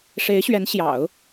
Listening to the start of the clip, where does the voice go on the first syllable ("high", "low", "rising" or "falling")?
rising